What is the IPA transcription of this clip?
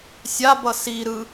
sʲ a b ʌ s i ɾ ɯ

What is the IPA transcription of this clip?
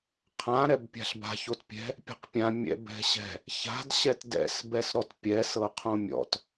qʰ ã ɾ ɛ b pʲ a̤ ɬ b a̤ ç o t pʲ ɛ̤ | pʲ ɛ̤ q pʲ ã mʲ ɛ̰ b ɛ̤ ɕ ɛ̤ | ç a̤ d ɕ ɛ t d ɛ̰ s b ɛ s ɾ ɔ t pʲ ɛ s ɤ qʰ õ mʲ ɔ̰ t

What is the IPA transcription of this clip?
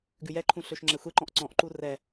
ɡ ʉ j ɛ ǃʰ ũ ɬ ø ʃ ŋ͡ǁ ɛ xʷ e ǃ ɔ̃ ʔ ǀ ɔ̃ ʔ ǃ u r ɛ

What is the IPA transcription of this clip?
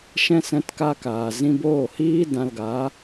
ʃ ɛ̃˧ s ɛ̃˨˦ t k aː˧ k aː˨ z ĩ˧ b oː˦˨ h iː˦ d ã˧ l ɡ aː˨˦

